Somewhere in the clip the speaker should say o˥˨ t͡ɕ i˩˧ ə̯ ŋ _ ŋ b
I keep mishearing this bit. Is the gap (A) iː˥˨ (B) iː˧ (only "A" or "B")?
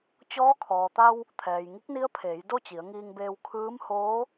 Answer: B